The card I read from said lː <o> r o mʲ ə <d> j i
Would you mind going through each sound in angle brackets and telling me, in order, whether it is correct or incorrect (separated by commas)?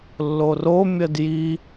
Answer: correct, correct